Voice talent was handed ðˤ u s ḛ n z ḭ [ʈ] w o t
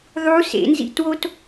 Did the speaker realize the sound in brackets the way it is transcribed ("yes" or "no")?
no